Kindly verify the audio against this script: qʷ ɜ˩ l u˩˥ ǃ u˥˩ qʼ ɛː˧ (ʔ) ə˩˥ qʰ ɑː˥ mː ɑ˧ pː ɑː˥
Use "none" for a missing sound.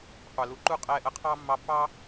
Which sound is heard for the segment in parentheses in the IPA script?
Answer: ʔ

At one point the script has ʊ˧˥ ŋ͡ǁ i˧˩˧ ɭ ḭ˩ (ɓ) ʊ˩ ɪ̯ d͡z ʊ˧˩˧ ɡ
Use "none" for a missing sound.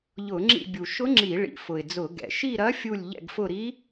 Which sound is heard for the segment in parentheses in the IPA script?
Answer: f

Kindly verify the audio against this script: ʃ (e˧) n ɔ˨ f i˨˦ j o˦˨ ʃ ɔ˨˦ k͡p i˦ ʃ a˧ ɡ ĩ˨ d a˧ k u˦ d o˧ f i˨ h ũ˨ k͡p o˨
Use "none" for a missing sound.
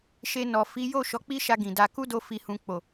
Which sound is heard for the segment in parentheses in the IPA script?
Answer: e˧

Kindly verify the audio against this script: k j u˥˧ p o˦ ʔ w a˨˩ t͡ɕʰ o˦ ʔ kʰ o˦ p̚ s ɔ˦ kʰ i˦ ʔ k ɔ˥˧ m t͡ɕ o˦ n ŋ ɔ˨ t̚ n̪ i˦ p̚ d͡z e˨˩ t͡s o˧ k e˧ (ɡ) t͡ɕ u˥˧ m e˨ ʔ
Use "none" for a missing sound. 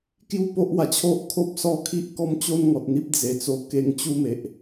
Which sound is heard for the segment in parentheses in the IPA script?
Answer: ŋ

